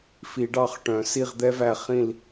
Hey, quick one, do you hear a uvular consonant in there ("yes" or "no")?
yes